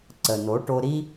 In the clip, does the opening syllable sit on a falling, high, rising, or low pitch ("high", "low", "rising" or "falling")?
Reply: low